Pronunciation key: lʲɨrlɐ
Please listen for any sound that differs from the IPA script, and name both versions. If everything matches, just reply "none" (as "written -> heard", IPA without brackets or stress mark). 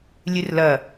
none